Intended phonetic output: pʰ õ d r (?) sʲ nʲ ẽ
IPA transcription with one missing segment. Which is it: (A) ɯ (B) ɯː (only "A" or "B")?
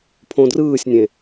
B